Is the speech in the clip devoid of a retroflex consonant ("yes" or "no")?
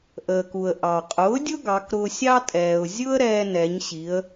yes